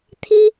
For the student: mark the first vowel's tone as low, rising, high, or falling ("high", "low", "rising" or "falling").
high